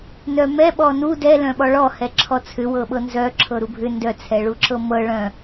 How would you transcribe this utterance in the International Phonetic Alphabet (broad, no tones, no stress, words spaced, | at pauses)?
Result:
nœmɛɓɔ nu dɛ lœ̃ɓɔɭɔ hɛǁʰɔt͡sʰʏ wɤɓɤnzœ ǁʰɤɾubʱʏ ndœt͡sʰɛɭuǁɤ mɤ ɭœ̃